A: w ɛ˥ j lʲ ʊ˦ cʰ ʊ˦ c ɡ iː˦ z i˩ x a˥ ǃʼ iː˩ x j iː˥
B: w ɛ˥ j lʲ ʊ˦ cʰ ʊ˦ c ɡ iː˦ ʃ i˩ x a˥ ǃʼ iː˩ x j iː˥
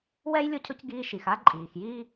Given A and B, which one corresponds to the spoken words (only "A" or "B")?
B